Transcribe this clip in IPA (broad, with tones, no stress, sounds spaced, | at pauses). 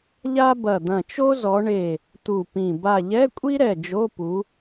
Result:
ʎ a˥ b ɐ˧˩ d̪ ɐ̃˧˩ t͡ʃ o˥ z ɔ˨˦ ɳ e˧˩ | t̪ u˧˩ p ĩ˧˩ b a˧˩ ʎ ɛ˧˥˧ kʷʼ i˥ ɾ ɛ˧˩ d͡ʒ o˧˥˧ p u˨˦